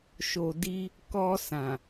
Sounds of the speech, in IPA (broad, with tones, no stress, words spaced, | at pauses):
ʃo˨di˧ | kɔ˧sã˨